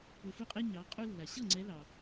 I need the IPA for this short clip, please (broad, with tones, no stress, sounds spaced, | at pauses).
p u˨ f u˥˩ qʼ ɛ˥ ɲ ɑ˨˦ qʼ u˥ lː a˨ ɕ ɤ˥˩ ŋ͡ǀ ɛ˨˦ l ɑ˨